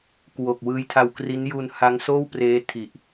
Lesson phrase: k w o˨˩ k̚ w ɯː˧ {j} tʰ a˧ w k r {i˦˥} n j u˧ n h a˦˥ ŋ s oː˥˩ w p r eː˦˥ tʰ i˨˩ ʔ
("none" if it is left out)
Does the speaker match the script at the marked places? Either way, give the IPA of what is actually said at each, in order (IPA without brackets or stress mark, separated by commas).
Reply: j, i˦˥